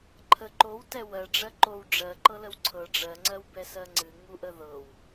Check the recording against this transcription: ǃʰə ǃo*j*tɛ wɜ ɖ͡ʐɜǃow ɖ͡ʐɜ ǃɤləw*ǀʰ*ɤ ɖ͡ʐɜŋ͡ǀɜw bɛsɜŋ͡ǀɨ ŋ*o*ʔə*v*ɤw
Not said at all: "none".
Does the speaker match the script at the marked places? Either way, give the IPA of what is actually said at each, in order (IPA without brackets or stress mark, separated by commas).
w, ǀʰ, u, ð